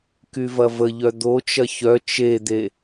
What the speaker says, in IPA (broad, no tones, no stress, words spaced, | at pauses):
kyvɐvəʎœ d̪ot͡ʃɐ çœ t͡ʃed̪e